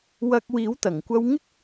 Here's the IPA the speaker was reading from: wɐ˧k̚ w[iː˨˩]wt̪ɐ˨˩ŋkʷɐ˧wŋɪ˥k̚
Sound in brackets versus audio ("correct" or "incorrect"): incorrect